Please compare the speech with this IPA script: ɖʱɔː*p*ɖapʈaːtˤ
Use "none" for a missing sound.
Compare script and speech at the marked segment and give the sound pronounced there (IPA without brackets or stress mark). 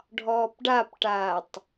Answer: p